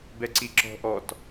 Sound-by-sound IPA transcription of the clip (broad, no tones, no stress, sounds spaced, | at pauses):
b ɛ ǀ i ǁ ɔ̤ ʔ ɔ t